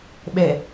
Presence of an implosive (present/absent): present